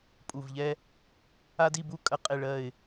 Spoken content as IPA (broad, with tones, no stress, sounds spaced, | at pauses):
pʼ u˨˩ v ʎ ɛ˦ | a˦ d i˦˨ b u˦ kʼ ɐ˦˨ qʼ e˦˨ ɭ ɜ˦˨ ɪ̯